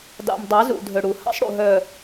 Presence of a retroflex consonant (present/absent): present